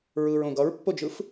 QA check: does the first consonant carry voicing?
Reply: yes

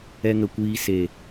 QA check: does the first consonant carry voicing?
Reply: yes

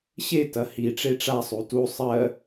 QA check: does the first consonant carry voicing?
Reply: no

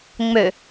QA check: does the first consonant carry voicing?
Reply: yes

